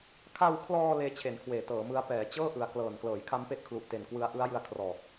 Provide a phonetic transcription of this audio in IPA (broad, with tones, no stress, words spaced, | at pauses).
kʰa˧wkʰlɔː˧ leː˦˥t͡ɕʰe˩˦nkʰweː˩˦ tɤː˩˦mɯ˦˥a̯ pɛː˩˦t͡ɕɤː˥˩ ʔɯ˩˦a̯klɤː˨˩n klɤː˩˦jkʰa˦˥mpe˦˥ʔkʰlu˨˩ʔ te˨˩nkwɯ˧a̯ʔɯ˦˥a̯jɯ˧a̯ kʰrɔː˨˩k̚